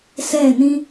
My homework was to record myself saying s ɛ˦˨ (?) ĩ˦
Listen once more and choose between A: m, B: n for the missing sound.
B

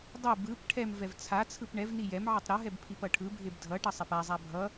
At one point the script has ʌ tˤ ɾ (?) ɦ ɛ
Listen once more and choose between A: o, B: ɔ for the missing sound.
A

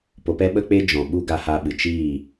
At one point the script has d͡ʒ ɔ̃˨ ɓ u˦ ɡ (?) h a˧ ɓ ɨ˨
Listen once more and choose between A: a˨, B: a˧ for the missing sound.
B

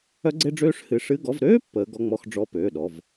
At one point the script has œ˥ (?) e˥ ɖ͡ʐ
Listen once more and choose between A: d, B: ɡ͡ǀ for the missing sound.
B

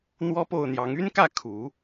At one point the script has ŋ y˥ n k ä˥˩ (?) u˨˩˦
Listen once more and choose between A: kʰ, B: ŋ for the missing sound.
A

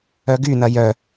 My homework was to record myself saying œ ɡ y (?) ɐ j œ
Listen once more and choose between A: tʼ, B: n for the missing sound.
B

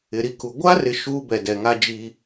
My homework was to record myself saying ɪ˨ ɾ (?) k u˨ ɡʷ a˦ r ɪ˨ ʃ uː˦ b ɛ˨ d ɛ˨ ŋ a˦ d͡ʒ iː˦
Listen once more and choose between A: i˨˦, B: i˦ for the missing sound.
B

